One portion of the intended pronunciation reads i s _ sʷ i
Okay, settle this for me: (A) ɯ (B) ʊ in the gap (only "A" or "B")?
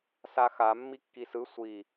A